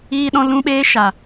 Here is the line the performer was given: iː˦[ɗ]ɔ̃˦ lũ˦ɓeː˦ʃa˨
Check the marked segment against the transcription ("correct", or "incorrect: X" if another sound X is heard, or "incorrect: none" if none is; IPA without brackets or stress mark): correct